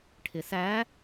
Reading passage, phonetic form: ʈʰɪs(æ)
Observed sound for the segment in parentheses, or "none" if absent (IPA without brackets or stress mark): æ